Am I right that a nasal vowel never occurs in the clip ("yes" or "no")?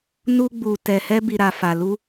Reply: yes